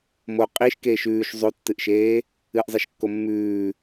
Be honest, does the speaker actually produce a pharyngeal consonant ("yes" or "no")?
no